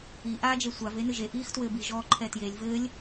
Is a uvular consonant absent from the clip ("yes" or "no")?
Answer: yes